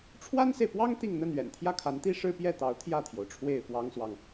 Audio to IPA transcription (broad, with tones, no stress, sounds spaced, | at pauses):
ʈ͡ʂʰ w a˥ n s e˨ ɪ̯ p w ɑ˥ ŋ t̪ i˥˧ ŋ n̪ ə˥˩ n ɥ ɛ̰˨˩ n t̪ʰ j ä˥˩ kʰ a˧˥ n t̪ i˥ ʂ ɻ̩˥ p j ɛ˥˩ t̪ ɑ˧˥ ʊ̯ t̪ʰ j ä˥˩ t̪ʰ j o˩ ʊ̯ ʈ͡ʂʰ w e˥˩ ɪ̯ f w ɑ˥ ŋ s w ɑ˨ ŋ